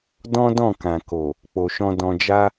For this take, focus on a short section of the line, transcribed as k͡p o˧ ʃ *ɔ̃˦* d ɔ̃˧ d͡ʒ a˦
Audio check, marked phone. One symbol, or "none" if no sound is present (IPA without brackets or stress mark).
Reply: ɔ̃˦